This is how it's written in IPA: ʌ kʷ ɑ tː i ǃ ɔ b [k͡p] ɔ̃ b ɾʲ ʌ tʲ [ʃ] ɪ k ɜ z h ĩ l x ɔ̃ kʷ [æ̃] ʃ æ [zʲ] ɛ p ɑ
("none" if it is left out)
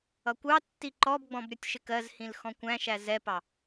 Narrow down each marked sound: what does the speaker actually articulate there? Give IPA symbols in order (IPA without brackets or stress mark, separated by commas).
ɡ͡b, ʃ, æ̃, z